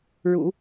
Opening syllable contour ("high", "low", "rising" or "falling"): low